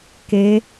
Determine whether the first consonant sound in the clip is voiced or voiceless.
voiceless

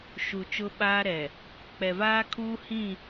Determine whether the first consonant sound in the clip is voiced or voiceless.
voiceless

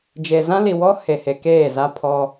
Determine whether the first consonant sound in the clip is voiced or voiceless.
voiced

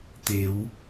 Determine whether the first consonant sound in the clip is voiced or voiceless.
voiceless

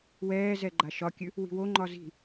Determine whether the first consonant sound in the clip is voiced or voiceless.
voiced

